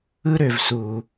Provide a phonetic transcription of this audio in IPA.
ɯ˦ ɾ ø˨ v s u˨

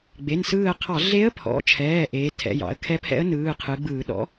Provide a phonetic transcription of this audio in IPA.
ɡ͡b e˩˧˩ n s ɯː˧˩ ə̯ qʰ ɑ˧˩˧ ɮ e˧˥ ə̯ pʰ ɔ̰˩˧˩ t͡ʃʰ ɛː˩˧˩ ʔ eː˩˧ tʰ ɛ̰˩˧˩ j ɑ̰˩˧ ə̯ kʰ ɛ˧˥ pʰ ɛ̰˧˥ ə̯ n ɯː˩˧˩ qʰ ɯ˩˧ ɡ͡b ɯː˧˩˧ ɗ ɔ̰˧˥

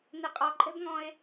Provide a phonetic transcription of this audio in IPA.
n e qʼ ɒ ǃʼ ɛ̤ b ŋ ɔ̃ e̯

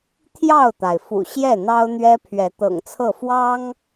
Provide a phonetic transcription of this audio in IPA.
t̪ʰ j ɑ˥˨ ʊ̯ t̪ a˩ ɪ̯ f ṵ˨˩ ɕ j ɛ˥˨ n̪ ɑ˦ ʊ̯ n̪ ɥ ɛ˦ pʰ ɥ ɛ˨˦ t̪ ɤ̰˨˩ ŋ t͡sʰ ɤ˥˨ f w ɑ˦ ŋ

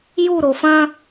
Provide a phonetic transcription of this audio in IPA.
j u ɾ o f ɐ̃

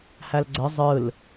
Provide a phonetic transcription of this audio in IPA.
h æ l ɡ͡ǀ ə zˤ ɯ l

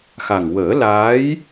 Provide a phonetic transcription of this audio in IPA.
x a˨˩ ŋ w əː˨˩˦ l aː˧˥ j

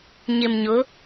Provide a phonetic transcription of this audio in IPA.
ɲ ɪ˨ m ɲ ʊ˨˦

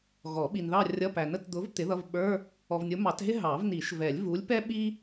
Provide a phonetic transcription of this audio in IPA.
ɣ ɔ˨˩˦ ɓ i˨ n ð ɑ˥˧ rʲ ʌ˧˥˧ p æ˨ n ə˥˧ t d̪ ʊ˨˥ v t̪ ɪ˨˥ ð ʌ˧˥˧ v ɓ ə˞˧˥˧ | ɔ˨ v nʲ ʊ˨˥ m ɑ˨˩˦ t ɦ ɪ˥ ɦ ɑ˨˩˦ v n i˨˩˦ ʃ v ɛ˨˩˦ lʲ v u˨˥ lʲ p ɛ˥ ɓ i˥

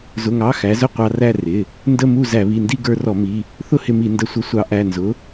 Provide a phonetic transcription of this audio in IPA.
z ʊ˩˧˩ ŋ ɑ˩˧˩ x æ˨˥ z ʊ˥˧ qʷ ɑ˧ r æ˥˧ r ɪ˩˧˩ | n d ə˥˧ m u˥˧ z æ˧˩˧ β i˩˧˩ n d i˥˧ ɡ ə˞˧ r ɔ˧˩˧ m i˩˧˩ | θ ʊ˥˧ h ɪ˧ m i˧˩˧ n d ə˨˥ sʷ ə˨˥ sʷ ɑ˨˥ ʔ æ˩˧˩ n z ʊ˨˥

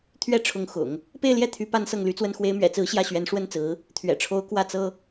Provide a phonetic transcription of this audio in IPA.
t̪ʰ ɥ ɛ˥ ʈ͡ʂʰ ʊ˧˥ ŋ x ʊ̰˨˩˦ ŋ | p e˥˧ ɪ̯ l j ɛ˥˩ t̪ʰ y˧˥ p a˥ n s ɤ˥˩ ŋ l y˧˥ t͡s w ə˥ n x w e˧˥ ɪ̯ m ɥ ɛ̰˨˩ t͡s ɹ̩˧˥ ɕ j ä˥˩ ɕ ɥ ɛ˧˥ n ʂ w ə˥ n t͡s ɹ̩˧˥ | t̪ʰ ɥ ɛ̰˨˩ ʈ͡ʂʰ o˧˥ ʊ̯ k w ä˥˩ t͡s ɤ˥

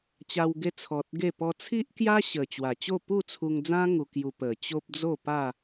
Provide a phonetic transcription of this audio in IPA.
t͡ɕ a˧ w ɡ e˧ t͡sʰ ɔ˨ t̚ ɡ e˥˧ p ɔ˧ t͡sʰ i˦ ʔ k j a˦ ɕ ə˨˩ t͡ɕ w a˨˩ t͡ɕ o˥˧ p u˥˧ t͡sʰ u˧ ŋ d͡z ã˦ ŋ u˧ k j u˧ p ə˨˩ t͡ɕ o˦ p̚ d͡z o˥˧ p a˥˧

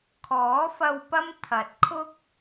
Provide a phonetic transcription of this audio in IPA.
kʰ ɔː˨˥ f ɐ˧ w p ɐ˥ m t̪ʰ ɐ˨˥ t̚ kʰ ʊ˥ k̚

